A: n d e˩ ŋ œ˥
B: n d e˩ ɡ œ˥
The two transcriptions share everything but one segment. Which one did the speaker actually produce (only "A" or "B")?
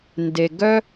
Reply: B